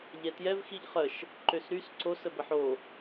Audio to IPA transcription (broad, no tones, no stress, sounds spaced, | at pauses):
ʎ ɛ t j ɛ v x i ʎ χ ə ʃ | ǃ ø s ɾ y s ǀ o s ə b ə ħ o